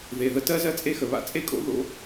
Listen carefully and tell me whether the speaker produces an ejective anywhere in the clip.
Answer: yes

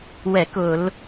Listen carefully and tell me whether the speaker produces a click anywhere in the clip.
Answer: no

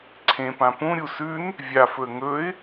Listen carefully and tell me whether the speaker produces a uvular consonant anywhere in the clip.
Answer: no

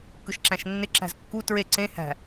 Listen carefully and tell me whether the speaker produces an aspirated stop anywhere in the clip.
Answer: no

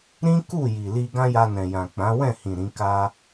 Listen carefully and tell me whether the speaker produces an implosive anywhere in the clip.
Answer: no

